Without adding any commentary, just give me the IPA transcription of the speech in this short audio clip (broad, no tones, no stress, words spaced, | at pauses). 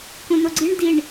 kũnoɡ͡ǀiɳ diɳ